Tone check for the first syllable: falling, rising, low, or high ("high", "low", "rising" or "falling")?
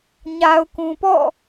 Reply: low